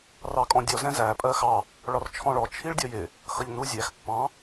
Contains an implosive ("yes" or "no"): no